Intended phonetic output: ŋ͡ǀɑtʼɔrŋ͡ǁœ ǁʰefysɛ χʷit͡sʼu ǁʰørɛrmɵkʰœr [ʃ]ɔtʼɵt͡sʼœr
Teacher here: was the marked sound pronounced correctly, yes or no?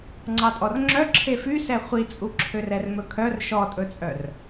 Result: yes